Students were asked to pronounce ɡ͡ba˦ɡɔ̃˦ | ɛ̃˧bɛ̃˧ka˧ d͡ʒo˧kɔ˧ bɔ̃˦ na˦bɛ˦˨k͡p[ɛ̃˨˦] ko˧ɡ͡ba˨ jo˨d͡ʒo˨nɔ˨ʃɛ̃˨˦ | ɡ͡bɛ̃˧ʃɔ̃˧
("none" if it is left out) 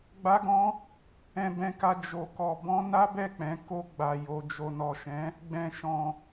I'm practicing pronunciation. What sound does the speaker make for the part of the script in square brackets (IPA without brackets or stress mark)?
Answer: ɛ̃˨˦